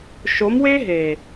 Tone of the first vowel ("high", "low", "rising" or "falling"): rising